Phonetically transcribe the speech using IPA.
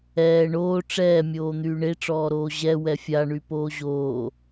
ɛː ɳoː ʈ͡ʂɛːmʲoː n̪yːɳeʈ͡ʂɔːɾoː ʑɛ wɛfʲa ɳypoːʑoː

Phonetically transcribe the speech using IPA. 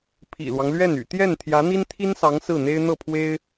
pʰḭ˨˩lwɑ˦ŋlɥɛ˥˩n y̰˨˩t̪jɛ˥˩n t̪ʰjä˧˥n̪i˥nt̪ʰi˥nsɑ˧˥ŋ sɹ̩˥˩n̪e˥ɪ̯ n̪ɤ˥˩pʰwe˥ɪ̯

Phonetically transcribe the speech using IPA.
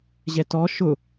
ʑɛtɔ ʃʊ

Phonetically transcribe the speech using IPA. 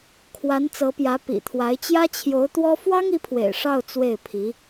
kʰwa˧˥nt͡sɤ˧˥pjä˧˥ pḭ˨˩t̪ʰwa˧˥ɪ̯ t͡ɕjä˥t͡ɕʰjo˧˥ʊ̯t̪wɔ˥ fwɑ˥ŋi˧˥pʰwḛ˨˩ɪ̯ ʂɑ˥˧ʊ̯ t͡swe˥˩ɪ̯pʰi˧˥

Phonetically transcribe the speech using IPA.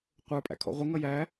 qʷə˞pʼæ̰kʰɔ̰ ʁʷɪ ŋʌjæ

